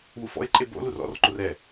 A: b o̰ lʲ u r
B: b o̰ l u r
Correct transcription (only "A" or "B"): B